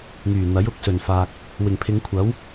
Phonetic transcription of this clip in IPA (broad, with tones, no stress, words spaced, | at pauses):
ŋyː˨˩ n̪ɐ˨˥jʊ˨˥k̚sɵ˨˩nfaː˨k̚ | wɪ˨˩ŋpʰɪ˨˧ŋkʷʰɐ˨˥w